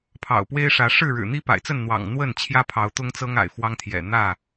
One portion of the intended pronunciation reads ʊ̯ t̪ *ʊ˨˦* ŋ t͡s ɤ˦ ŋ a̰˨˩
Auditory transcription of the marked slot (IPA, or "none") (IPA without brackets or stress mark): ʊ˦